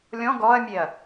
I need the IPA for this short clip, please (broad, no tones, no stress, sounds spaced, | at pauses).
lʲ ɔ̃ ɡ ɔ ɐ̯ mʲ e ɐ̯